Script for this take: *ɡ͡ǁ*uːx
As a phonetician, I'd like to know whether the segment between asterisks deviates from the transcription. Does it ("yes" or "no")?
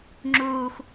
yes